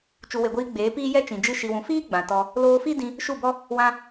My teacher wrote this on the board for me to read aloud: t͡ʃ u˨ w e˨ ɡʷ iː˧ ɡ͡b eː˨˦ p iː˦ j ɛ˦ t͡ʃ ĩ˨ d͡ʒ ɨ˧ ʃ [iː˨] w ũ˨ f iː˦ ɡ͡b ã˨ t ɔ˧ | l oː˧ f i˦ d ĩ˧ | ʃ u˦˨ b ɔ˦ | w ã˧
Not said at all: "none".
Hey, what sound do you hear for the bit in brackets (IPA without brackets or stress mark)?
i˨